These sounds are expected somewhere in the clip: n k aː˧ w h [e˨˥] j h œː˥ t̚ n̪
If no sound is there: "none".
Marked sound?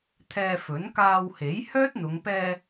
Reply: e˨˥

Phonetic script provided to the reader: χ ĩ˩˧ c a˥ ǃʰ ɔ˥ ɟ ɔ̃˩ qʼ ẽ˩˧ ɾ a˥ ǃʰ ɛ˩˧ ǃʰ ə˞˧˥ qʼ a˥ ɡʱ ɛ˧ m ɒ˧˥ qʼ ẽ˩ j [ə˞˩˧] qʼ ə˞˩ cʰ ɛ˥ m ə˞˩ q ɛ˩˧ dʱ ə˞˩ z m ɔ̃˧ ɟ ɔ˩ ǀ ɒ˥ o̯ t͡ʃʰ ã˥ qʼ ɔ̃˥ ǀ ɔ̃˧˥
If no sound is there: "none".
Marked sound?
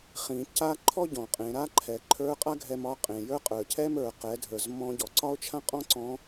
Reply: ə˞˥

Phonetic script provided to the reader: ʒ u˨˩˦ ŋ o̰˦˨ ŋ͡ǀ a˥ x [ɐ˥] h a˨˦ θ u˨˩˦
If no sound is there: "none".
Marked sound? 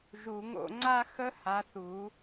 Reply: ə˥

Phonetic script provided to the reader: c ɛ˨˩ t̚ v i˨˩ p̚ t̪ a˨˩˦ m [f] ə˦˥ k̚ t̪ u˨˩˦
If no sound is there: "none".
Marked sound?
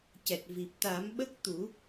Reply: ɓ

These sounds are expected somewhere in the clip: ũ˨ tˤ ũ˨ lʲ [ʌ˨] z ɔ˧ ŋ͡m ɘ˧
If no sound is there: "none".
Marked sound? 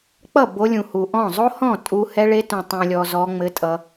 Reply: ɔ˨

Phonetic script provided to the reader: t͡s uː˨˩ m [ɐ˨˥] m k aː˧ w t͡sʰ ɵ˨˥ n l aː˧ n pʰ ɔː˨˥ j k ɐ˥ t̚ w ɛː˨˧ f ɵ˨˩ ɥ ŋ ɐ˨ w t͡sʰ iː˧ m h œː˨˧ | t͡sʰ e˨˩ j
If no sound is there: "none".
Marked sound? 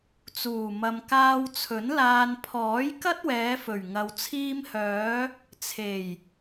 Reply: ɐ˨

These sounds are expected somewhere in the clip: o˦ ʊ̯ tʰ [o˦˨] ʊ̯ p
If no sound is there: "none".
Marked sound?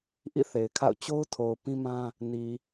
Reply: o˨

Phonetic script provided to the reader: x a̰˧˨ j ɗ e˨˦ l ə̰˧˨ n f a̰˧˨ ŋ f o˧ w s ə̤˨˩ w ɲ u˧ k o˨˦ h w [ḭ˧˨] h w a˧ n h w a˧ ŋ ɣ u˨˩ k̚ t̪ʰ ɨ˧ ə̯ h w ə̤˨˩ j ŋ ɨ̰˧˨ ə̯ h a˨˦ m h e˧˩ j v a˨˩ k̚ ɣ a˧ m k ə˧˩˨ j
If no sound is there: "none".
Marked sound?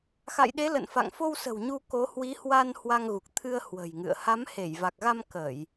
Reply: i˨˦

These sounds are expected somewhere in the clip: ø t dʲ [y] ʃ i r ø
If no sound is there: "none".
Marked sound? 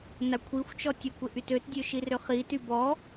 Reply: ø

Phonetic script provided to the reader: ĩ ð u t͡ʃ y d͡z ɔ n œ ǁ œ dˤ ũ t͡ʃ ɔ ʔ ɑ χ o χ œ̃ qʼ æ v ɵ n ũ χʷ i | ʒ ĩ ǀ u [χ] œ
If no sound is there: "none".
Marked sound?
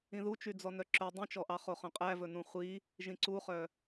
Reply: χ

